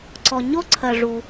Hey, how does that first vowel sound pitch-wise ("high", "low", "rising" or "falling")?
low